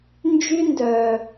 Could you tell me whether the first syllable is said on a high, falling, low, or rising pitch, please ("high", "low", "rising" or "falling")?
high